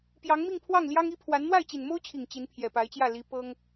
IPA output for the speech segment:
p j ɑ˧˥ ŋ m i˥˧ ŋ pʰ w ɑ˥˩ ŋ l j ɑ˥ ŋ i˥ pʰ w a˧˥ n n̪ w a˥˩ ɪ̯ t͡ɕ i˨˩ n m o˥ ʊ̯ t͡ɕʰ i˨˩ ŋ t͡ɕ i˧˥ n pʰ j ɛ˨˩ p a˧˥ ɪ̯ t͡ɕ j ä˥˩ l i˧˥ p ɤ˥ ŋ

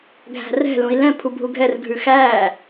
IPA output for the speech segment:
ɡʱ æ̤ r ɛ̤ l ũ i̯ l ɛ̃ pʰ u bʱ u ɡʱ ɛ r ɡʱ ʉ x æ

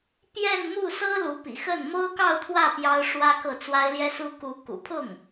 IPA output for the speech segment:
p j ɛ˥˧ n m u˥˩ s ɤ˥ l u˧˥ p ḭ˨˩ x ə˥˩ n m o˥ ʊ̯ k ɑ˥˧ ʊ̯ t̪ʰ w ä˥˩ p j ɑ˥ ʊ̯ ʂ w ä˥ k ɤ˥˩ t͡s w a˥ ɪ̯ l j ɛ˥ s u˥ k u˧˥ k ṵ˨˩ pʰ ʊ˥˩ ŋ

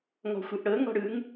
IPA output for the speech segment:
ŋ ɔ̤ xʷ ɯ ʔ ɽ ɤ ŋ ɔ̤ ɽ ɯ ŋ

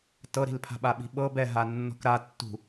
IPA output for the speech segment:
t ɤ ɾ i̤ l pʰ a̤ ɓ a ɓ i̤ ɓ ɤ b ɛ ɦ a nː ɔ̤ k ɾ a tː ṳ

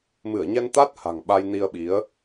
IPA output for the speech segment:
m ɨ˧˩ ə̯ ɲ ɛ˧ n t̪ a˦˥ t̚ h a̤˨˩ ŋ ɓ a˧ j n i˧ ə̯ ɓ i˨˦ ə̯

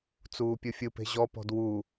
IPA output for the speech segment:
t͡s uː pʲ ɯ fʲ ɯ p e̤ ʑ ɔ p ɔ̤ d w u

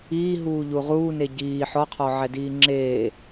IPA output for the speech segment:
iː ɦ uː ʎ u ʁ uː n e ɟ iː ħ ɔ qʰ ɔ ʕ ɛ d iː ŋ͡ǁ eː

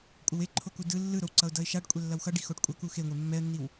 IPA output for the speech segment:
kʷʼ ʌ w e ǃʰ o k u d ɯ lː ɯ ɾ o w ǀ ʌ ʊ̯ d ʌ ɪ̯ ʃ a ɖ kʷʼ ɛ lː ʌ w x ʌ ɖ i x o ɖ kʷʼ ʌ k u x e ŋʷ e mː ɛ ə̯ nː i w

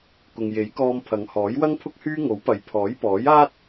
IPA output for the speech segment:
k ʊ˨ ŋ j e˨˥ j k ɔː˧ m pʰ ɐ˨˧ ŋ h ɔː˨˥ j w ɐ˥ ŋ pʰ ʊ˥ k̚ h yː˥ ŋ o˨˥ w p ɐ˨˧ j pʰ ɔː˨˥ j p ɔː˨˥ j aː˥ t̚

